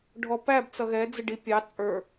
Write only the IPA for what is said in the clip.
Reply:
ɖʱɔpæb t͡sʌɣɛ d͡zɪɖipʲɑ t͡sʼə˞

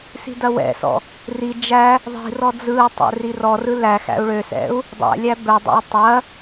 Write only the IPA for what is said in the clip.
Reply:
si̤dɐwɛ̰sɔ̰ | ri d͡ʒæ | ðˤi̤rɔ d͡zɯu̯tˤɛ̰ rirɔrɯ læ xæ̰u̯ɭøsɛ̰u̯ | dˤæ̰lʲæ bɛdˤæ̰i̯ tˤɐ

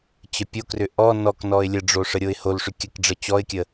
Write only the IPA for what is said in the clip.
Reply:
t͡ɕəpʲokrʏ ʔɔ nɔknɔɪ̯ lʲəɖ͡ʐo ʂəɾʲoɪ̯holʂʏ kʲəkɖ͡ʐə t͡ɕɔɪ̯kʲə

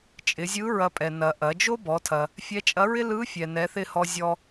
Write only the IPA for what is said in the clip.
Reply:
t͡ʃʼɪ˩˧zʲɯ˧˥ ɹɐ˧pʼɛ˩nɐ˩ ʔɐ˩˧d͡ʒo˥bɔ˩˧tʰɐ˩ | fʲɛ˧˥t͡ʃʼɐ˧˥ɹɪ˥ lɯ˧˥ fʲɛ˩nɛ˩˧θɪ˧ hɔ˧zʲɔ˧

